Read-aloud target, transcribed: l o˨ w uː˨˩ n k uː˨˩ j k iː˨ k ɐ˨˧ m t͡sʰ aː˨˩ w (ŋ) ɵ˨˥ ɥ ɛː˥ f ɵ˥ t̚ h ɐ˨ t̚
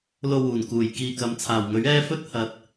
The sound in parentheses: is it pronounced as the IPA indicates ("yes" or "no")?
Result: yes